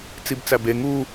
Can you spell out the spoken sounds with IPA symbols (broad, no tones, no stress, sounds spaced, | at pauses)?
t͡s i b t͡s æ b e ŋ u